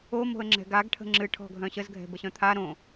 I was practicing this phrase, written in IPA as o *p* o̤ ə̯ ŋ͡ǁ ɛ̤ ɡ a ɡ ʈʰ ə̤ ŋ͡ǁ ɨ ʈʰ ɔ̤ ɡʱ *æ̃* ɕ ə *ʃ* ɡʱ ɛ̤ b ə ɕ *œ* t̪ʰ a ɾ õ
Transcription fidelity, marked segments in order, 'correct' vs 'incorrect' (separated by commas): incorrect, incorrect, incorrect, incorrect